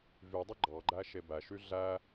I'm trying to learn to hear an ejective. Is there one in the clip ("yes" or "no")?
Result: no